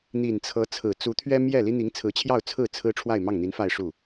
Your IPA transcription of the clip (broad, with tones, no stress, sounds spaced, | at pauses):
n̪ i˨˩ n t͡sʰ ɤ˧˥ t͡sʰ ɹ̩˨˩ t͡s u˧˥ t̪ʰ ɥ ɛ˥ m j ɛ˥˩ l i˥ n̪ i˧˥ ŋ t͡sʰ ɹ̩˧˥ t͡ɕʰ j ɑ˥˧ ʊ̯ t͡sʰ ɹ̩˥˩ t͡sʰ ɹ̩˥ ʈ͡ʂʰ w a˥˧ ɪ̯ m ɑ˥˩ ŋ n̪ i˧˥ n f a˥˧ ɪ̯ ʂ u˥˩